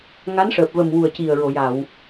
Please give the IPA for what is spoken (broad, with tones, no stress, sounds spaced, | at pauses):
ŋ a˧˥ n ʂ əː˨˩ p̚ v ə˨˩ m w u˨˩ ə̯ c i˨˩ ə̯ ɹ o˨˩˨ j a˨˩˨ w